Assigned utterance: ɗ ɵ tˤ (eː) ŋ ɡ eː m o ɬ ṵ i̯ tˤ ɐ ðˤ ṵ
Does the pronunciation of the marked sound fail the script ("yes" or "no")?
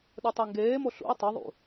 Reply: yes